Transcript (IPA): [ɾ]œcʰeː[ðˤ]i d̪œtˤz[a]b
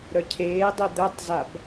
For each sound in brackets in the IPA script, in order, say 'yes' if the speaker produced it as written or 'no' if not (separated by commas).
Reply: yes, no, yes